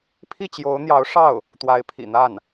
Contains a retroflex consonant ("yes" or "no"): yes